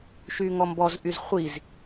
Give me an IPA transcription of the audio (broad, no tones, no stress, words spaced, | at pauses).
ʃyŋɔmbɔzʔyz χʷiz